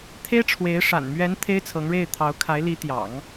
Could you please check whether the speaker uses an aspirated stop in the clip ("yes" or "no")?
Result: yes